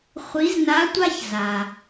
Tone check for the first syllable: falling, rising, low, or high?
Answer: rising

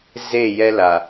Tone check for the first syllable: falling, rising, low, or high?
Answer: falling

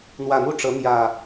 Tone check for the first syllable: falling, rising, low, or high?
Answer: low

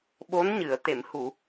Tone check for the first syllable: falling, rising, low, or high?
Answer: rising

